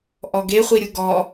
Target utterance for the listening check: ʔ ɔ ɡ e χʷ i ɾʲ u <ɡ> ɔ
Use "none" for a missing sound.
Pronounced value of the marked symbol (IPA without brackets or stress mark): ɡ